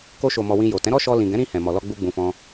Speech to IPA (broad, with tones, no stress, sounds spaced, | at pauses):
k o˧ ʃ o˨ m ɔ˨ w ĩ˧ j o˨ t ɛ̃˨˦ ɾ ɔ˦ ʃ ɔ˧ l ĩ˨ ɡ ɛ̃˨˦ ɾ ĩ˧ h ɛ̃˨ m ɔ˨ l ɔ˧ ɡ͡b u˦ ɡ͡b ũ˧ f ɔ̃˦